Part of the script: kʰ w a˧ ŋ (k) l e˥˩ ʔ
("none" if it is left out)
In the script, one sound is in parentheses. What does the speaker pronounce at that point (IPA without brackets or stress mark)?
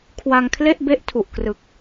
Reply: kʰ